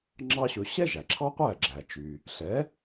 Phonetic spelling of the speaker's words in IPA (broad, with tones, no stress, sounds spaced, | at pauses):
ŋ͡ǁ ɑ˥ ɕ ɵ˧ ɕ ɛ˥ ʒ æ˩ ǁʰ ɑ˥ qʷ æ˥˩ ɡ͡ǁ æ˩ t͡ʃ y˩ | ɬ ɛ˩˥